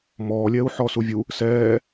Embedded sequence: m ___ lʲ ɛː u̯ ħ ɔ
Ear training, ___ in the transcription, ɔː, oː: ɔː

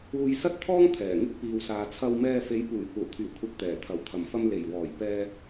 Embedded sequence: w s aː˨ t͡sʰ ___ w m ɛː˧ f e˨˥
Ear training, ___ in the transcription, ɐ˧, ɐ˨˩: ɐ˧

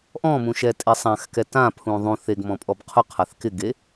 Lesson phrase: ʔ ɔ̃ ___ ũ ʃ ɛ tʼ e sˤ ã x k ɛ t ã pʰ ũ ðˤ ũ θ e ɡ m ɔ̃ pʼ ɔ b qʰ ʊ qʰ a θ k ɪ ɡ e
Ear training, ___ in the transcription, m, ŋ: m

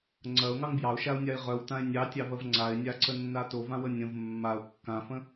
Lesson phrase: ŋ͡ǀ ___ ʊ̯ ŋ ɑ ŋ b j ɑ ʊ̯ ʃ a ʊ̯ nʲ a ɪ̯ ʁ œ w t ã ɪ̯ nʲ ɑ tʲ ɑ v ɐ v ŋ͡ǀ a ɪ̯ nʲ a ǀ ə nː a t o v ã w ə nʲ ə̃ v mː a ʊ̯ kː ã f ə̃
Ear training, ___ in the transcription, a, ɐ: ɐ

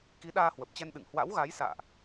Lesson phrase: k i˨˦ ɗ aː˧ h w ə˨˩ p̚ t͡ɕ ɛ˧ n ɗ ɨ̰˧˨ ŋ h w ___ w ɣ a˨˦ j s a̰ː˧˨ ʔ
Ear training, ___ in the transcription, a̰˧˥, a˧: a̰˧˥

